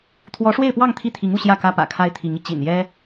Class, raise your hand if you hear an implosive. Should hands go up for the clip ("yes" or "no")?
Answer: no